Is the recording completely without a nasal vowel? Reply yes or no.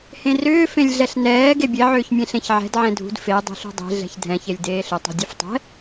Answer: no